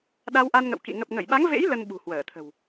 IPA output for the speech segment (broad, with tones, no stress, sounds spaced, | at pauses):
ɗ a˧ w ʔ a˧ n ŋ ə̰˧˨ w k ḭ˧˨ ŋ ə˨˩ p̚ ŋ ə˧˩ j ɓ a˨˦ ŋ v ḛ˧˥ j l ə˧ n ɓ ṳ˨˩ h w əː˧˩ t̪ʰ ə̤˨˩ w